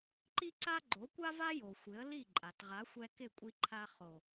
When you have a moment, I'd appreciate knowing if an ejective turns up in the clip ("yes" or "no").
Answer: yes